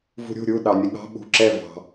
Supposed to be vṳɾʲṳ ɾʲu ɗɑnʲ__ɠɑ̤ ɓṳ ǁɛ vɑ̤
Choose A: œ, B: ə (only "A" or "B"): B